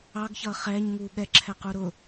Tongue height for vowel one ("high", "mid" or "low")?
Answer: low